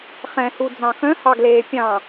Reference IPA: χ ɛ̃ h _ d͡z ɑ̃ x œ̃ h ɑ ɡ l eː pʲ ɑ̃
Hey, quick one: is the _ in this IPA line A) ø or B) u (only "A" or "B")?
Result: B